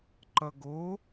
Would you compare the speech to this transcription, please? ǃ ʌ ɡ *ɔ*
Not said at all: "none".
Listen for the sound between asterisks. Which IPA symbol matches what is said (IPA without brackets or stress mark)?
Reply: o